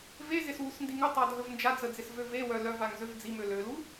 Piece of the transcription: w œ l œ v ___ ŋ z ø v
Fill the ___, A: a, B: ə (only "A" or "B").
A